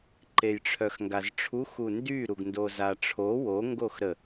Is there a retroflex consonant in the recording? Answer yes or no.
yes